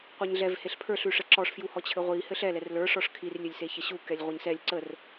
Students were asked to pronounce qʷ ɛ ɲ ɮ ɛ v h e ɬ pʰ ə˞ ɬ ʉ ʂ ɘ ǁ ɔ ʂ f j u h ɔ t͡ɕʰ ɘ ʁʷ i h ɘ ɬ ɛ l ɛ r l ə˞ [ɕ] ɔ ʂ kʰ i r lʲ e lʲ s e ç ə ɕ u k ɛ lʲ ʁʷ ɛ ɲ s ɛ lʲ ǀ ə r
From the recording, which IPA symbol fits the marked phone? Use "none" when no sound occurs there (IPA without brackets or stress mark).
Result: ʂ